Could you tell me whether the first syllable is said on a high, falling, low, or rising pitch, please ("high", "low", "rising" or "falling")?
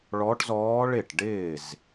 rising